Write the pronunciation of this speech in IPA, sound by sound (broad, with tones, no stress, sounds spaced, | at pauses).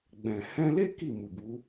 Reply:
ɡ͡b ɛ̃˨ h ɛ̃˧ l e˦ k i˦˨ m u˨ b u˨˦